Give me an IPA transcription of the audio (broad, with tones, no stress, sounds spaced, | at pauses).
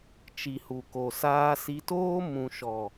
t͡ʃ i˨ h u˨ k o˨ s aː˧ s i˧ t oː˦ m ũ˨ ʃ ɔ˨